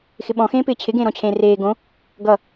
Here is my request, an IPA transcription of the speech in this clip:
xɪɓɔ̃xẽːpɪː t͡ɕʰɪɡẽːɾɔ̃t͡ɕʰẽː reː ɡõ | ɡʌ

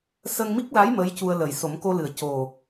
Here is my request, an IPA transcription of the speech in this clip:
sə˧ŋmi˦˥k̚la˧˥j mə˧˥jcu˧ə̯lə˨˩j so˨˩˦mko˧lɨ˨˩˨ə̯ co˨˩

